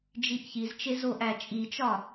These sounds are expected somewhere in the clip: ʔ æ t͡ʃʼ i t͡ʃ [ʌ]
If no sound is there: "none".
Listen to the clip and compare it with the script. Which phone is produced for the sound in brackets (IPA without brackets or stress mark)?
ɒ